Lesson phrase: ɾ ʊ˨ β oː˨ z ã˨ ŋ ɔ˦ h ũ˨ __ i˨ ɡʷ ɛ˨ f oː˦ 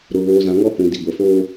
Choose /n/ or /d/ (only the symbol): d